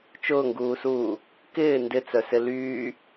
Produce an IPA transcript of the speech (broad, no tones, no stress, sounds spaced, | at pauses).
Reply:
t͡ʃ ʊː ŋ ɡ uː s uː | k ɪː n d ɪ t͡s œ s ɪ l yː